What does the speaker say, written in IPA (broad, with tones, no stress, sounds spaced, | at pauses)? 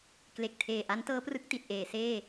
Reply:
k l e˨˩ k̚ tʰ eː˨˩ ʔ a˦˥ n t ɤː˦˥ p r ɯ˦˥ k̚ t i˨˩ t̚ ʔ eː˩˦ s eː˥˩